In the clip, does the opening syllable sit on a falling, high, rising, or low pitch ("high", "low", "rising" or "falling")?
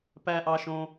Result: high